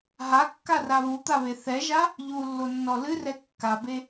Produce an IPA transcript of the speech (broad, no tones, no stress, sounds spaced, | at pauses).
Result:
ɦ a kː a r a β u t̪ a β e θ ɛ ʒ a | ʎ u lː o nː ɔ l ɨ r ɛ kː a b e